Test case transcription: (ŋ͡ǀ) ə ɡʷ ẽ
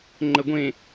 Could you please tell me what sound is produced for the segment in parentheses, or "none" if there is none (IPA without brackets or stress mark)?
ŋ͡ǃ